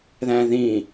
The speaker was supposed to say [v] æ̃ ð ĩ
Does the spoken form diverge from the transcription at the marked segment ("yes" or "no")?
yes